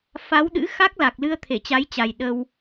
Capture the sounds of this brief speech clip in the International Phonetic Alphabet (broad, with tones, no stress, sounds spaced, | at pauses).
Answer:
f a˨˦ w ɗ ɨ̰˧˥ x a˦˥ k̚ l a˨˩ k̚ l ɨ˧ ə̯ t̪ʰ e˧˩ t͡ɕ a˨˦ j t͡ɕ a˨˩ j ɗ ə˧ w